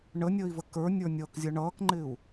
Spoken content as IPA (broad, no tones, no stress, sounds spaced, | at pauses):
ɳ ə nʲ əː i̯ v ə k ə˞ nʲ ə˞ nʲ ʌː k zʲ ʌ ɳ ʌː k ŋ͡ǃ ɪː u̯